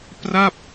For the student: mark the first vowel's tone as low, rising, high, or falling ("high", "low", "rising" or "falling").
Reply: falling